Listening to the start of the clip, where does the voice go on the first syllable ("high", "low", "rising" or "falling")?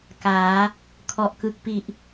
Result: rising